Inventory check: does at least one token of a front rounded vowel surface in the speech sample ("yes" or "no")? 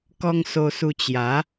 no